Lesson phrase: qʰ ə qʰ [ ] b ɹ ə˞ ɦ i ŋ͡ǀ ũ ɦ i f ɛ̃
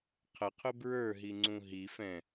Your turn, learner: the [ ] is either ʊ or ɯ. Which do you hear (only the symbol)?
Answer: ʊ